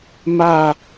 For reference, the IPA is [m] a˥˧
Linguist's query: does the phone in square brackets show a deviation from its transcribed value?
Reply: no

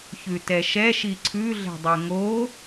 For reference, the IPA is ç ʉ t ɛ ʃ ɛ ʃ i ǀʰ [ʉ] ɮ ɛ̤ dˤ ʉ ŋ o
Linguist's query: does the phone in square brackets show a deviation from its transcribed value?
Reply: no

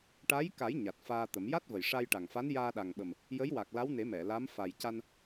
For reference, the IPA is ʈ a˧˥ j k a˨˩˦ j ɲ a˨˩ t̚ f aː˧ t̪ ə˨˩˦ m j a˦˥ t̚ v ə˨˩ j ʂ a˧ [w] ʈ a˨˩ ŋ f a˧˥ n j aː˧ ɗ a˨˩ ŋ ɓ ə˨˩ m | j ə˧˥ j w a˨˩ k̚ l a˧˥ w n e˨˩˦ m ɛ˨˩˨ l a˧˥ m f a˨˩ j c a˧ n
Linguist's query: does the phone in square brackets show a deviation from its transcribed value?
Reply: yes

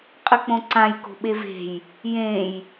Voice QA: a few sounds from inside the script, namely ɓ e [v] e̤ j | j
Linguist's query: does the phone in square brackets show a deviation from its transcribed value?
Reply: no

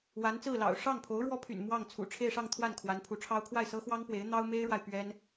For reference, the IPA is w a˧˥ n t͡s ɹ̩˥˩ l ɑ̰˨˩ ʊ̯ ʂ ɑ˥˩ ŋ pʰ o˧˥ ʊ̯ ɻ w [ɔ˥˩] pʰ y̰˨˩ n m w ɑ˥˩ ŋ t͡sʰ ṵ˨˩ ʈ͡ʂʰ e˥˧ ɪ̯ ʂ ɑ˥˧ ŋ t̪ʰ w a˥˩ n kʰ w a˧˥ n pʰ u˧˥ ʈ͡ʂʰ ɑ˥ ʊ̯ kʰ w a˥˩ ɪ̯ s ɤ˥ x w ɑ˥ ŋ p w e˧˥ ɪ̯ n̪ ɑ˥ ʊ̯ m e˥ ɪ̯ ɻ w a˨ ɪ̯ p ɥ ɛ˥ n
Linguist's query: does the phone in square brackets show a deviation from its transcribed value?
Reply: yes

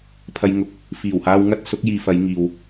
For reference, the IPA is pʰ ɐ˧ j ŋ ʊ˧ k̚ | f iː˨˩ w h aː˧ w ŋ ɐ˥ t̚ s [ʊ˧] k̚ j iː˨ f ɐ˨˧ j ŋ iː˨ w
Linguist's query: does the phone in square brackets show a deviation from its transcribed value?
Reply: yes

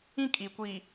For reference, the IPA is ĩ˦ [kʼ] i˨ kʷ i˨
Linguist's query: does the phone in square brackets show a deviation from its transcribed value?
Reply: no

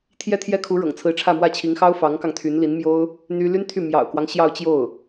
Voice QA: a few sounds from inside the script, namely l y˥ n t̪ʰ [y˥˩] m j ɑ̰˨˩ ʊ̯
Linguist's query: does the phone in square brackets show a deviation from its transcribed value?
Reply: no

